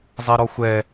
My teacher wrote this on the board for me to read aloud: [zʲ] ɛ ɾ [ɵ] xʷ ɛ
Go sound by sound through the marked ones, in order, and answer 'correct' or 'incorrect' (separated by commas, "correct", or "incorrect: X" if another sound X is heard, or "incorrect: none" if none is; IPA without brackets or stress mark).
incorrect: zˤ, incorrect: ɔ